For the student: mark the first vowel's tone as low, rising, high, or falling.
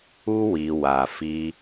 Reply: high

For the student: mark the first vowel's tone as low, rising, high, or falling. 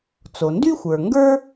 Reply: low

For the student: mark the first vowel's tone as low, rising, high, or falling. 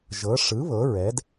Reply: rising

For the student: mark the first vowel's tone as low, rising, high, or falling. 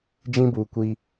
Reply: high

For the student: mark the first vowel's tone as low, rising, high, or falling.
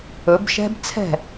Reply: rising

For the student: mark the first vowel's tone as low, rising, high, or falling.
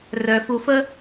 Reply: low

